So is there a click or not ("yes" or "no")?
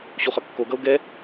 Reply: no